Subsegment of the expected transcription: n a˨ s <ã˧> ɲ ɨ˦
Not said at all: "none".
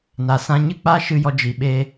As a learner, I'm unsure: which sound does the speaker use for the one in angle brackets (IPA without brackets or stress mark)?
ã˧